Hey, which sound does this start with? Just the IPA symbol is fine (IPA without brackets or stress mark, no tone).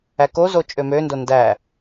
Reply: æ